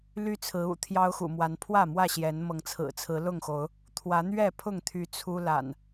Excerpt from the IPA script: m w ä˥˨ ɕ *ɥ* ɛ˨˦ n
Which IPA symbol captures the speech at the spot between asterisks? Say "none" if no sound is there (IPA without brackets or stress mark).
j